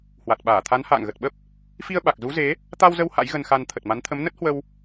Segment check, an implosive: present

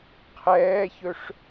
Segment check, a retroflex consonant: present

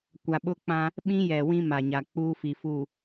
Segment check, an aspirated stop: absent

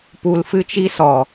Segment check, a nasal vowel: absent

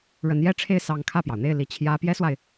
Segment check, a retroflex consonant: present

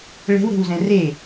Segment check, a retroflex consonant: present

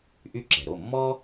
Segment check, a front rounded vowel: present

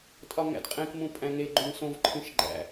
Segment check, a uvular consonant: present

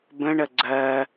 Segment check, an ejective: absent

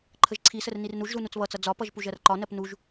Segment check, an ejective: absent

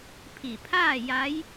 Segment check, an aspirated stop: present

